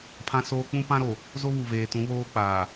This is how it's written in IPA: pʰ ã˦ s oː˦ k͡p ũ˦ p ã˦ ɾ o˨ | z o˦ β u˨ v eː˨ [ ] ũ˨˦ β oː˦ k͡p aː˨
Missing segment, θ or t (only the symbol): t